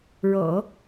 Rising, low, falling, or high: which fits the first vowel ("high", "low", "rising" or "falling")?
low